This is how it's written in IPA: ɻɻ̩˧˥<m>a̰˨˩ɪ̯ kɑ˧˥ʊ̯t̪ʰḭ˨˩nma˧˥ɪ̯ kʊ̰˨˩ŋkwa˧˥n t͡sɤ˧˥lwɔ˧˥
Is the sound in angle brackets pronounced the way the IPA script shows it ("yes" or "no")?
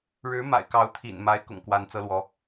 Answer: yes